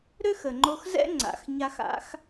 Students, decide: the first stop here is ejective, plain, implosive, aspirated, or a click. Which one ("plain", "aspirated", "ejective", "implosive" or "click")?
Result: click